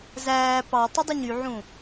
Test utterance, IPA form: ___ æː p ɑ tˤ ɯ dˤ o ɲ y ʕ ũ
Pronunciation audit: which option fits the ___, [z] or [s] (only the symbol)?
z